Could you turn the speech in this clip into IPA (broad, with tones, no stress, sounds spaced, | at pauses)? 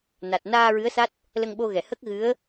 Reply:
n a˨˩ t̚ n aː˧ ɹ ɨ˧˥ ə̯ s a˦˥ t̚ | l ə˧ ŋ ɓ o˧ ɣ ɛ˨˩˨ h ə˦˥ k̚ ɣ ɨ˧˥ ə̯